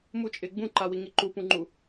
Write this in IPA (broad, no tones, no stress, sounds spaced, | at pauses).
m u t͡ʃʼ ɪː ɡ͡b ũ ǃ a w i ŋ i ǃ u p ũ ŋ͡ǃ u